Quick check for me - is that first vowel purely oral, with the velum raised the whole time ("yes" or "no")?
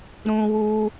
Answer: no